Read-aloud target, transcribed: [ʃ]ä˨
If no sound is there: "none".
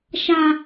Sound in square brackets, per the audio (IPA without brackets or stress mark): ʃ